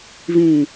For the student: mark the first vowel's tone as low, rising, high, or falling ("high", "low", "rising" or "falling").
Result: low